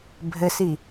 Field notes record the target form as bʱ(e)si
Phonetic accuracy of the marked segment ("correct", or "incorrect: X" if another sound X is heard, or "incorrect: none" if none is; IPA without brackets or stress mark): incorrect: ɘ